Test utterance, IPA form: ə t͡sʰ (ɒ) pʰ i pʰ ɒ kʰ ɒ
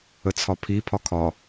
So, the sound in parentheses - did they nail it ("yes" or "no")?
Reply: yes